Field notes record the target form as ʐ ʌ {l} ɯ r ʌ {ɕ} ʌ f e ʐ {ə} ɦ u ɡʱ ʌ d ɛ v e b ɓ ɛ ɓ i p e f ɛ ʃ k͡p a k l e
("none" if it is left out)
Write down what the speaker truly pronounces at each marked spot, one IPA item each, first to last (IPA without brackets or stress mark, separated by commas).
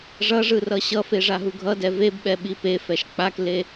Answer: ʐ, ɕ, a